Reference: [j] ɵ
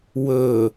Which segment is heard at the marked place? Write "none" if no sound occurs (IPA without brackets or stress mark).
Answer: w